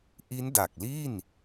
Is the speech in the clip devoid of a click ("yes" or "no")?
yes